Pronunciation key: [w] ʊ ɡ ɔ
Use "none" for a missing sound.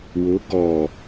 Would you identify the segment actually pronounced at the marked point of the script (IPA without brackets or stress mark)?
w